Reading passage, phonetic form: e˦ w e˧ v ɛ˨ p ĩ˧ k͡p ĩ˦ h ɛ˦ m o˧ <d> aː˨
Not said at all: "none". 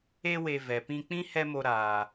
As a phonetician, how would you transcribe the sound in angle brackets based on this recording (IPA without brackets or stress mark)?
ɾ